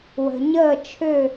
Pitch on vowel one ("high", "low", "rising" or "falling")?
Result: low